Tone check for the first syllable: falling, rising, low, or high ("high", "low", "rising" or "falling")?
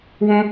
high